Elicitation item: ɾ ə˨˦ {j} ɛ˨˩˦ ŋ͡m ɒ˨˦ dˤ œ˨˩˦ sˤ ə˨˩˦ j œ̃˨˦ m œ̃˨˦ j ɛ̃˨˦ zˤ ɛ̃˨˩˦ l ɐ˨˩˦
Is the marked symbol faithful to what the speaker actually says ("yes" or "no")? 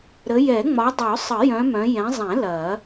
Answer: yes